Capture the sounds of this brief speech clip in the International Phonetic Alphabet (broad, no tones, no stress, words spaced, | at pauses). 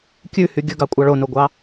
kʲʉhy ɡʲɵɡɑkʷʼɑ ɭonoɡʷɑ